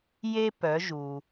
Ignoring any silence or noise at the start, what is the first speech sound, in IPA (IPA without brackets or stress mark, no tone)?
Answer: j